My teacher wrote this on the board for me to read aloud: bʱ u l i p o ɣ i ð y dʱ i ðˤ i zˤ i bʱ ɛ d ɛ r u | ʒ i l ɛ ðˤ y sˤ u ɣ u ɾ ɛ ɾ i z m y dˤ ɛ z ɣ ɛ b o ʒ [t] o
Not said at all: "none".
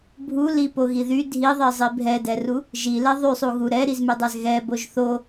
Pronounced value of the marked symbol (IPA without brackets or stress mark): θ